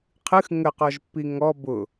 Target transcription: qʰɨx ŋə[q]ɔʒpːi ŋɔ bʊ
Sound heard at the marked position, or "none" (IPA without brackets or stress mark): q